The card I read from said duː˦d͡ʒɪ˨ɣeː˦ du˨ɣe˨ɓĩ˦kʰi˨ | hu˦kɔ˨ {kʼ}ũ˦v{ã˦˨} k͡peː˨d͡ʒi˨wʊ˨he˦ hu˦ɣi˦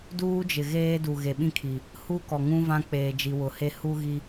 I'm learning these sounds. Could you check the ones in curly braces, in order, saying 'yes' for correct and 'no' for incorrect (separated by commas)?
no, no